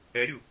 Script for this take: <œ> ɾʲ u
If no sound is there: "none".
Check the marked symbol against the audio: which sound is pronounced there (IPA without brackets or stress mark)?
ɛ